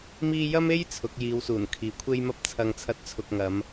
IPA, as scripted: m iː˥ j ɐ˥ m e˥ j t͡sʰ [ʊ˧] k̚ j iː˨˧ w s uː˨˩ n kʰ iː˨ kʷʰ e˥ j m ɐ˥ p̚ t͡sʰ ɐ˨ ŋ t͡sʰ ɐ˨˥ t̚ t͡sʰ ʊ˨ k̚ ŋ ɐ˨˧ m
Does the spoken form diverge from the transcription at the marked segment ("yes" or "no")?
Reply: yes